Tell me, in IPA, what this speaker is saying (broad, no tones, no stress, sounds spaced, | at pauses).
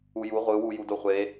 u j u ʁʷ ɯ w u j u d o χʷ e